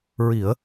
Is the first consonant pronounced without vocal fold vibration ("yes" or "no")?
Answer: no